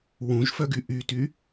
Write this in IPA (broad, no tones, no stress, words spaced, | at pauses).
wũʒfœɡy ʔyty